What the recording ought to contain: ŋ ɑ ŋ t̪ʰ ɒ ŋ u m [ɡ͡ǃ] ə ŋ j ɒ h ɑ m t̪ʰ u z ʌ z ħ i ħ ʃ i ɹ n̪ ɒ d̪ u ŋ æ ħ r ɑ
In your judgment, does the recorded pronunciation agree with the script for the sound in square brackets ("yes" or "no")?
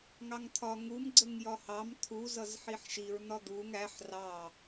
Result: no